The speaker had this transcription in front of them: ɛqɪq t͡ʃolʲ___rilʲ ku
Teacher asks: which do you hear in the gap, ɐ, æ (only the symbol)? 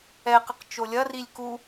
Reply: ɐ